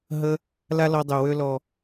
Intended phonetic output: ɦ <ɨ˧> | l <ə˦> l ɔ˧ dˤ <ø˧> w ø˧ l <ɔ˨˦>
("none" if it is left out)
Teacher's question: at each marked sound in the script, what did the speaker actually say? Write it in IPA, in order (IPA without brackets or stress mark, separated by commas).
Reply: ə˧, a˦, ø˨, ɔ˨